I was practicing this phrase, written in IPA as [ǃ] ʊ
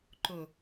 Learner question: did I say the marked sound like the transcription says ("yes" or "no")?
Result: yes